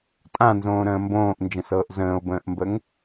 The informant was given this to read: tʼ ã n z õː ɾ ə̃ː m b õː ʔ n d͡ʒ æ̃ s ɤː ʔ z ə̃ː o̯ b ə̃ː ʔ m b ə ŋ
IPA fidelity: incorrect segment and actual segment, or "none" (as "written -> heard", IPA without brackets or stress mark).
æ̃ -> ə̃